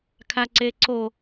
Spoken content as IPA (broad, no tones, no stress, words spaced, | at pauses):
kʰaǀeǀo